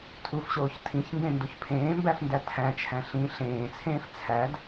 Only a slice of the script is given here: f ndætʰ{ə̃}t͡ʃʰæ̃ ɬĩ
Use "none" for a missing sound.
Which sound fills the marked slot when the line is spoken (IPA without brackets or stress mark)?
æ̃